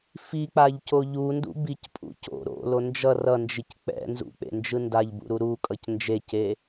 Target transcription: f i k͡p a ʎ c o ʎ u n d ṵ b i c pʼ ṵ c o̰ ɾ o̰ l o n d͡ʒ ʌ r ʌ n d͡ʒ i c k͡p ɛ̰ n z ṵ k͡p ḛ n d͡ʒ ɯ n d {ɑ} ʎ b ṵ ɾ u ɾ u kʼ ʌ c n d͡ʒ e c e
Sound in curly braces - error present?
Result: yes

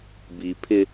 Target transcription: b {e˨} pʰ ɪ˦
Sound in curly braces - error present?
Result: yes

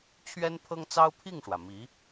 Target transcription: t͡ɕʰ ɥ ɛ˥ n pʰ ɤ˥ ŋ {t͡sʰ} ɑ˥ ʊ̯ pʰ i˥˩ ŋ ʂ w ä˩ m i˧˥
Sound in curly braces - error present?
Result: yes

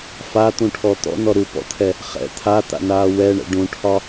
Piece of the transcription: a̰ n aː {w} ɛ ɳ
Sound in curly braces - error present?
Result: no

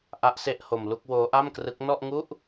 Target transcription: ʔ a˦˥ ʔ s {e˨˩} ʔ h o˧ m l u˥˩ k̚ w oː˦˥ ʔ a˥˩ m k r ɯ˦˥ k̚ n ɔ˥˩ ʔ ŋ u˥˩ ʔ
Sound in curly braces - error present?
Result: yes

